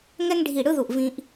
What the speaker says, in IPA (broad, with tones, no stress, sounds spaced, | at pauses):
ŋ ɛ˥ ŋ ɖʱ i˦˨ ɽ ɯ˥ ð u˦˨ ʔ v ĩ˥ ʔ